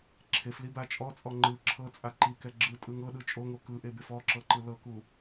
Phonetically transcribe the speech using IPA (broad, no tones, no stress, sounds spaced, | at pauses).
ǁʰ e f l i b a t͡ʃʼ ɔ t͡sʼ ɔ ŋ͡ǃ ɯ ǁʰ ɤ t͡sʼ a ǃ i k ɛ ɡ͡ǁ ɯ tʼ ɯ ŋ ɤ ɗ ɯ t͡ʃʼ o ŋ o k ɯ ʔ e b e f ɔ ǁ ɤ ǃ ɯ l ɤ k u